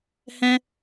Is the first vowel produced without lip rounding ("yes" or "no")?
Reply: yes